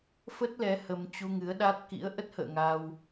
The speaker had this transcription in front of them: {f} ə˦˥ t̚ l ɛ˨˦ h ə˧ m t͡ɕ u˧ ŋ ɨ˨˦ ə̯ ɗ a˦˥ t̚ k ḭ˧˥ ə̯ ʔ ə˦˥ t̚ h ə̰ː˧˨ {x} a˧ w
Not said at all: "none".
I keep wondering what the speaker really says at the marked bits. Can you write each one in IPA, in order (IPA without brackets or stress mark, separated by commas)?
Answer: f, ŋ